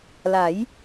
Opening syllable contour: rising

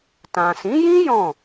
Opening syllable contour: low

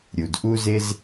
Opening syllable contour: low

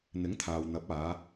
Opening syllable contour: rising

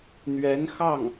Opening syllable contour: rising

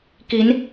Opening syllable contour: rising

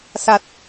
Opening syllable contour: low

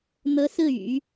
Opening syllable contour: rising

